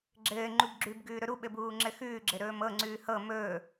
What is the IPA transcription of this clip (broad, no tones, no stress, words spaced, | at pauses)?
ɡ͡ǁɘː ŋ͡ǃubɡ͡ǁʉb ɡʉːɾɵɾu ɓɘbuːŋ͡ǁɘxʉː ɡ͡ǁɘɾɵːmɤ ŋ͡ǀʉːhɤ mɵː